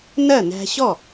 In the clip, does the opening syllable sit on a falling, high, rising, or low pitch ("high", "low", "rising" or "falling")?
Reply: falling